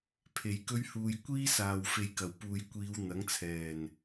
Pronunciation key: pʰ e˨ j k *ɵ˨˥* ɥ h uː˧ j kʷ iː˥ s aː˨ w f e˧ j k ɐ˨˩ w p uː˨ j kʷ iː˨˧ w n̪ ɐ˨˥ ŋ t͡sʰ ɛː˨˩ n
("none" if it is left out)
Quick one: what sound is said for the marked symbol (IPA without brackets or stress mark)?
ɵ˥